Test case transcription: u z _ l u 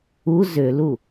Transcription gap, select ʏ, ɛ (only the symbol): ʏ